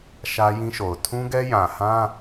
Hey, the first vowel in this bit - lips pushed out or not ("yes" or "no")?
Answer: no